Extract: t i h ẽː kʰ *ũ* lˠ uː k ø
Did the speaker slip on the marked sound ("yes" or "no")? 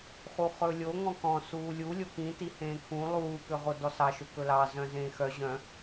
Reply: no